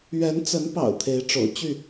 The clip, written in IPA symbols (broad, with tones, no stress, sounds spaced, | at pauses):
ɥ ɛ˨˦ n t͡s ə˨˦ n p ɑ̰˨˩ ʊ̯ t̪ʰ e˨˦ ɪ̯ ʈ͡ʂ o̰˨˩ ʊ̯ t͡ɕ y˥˨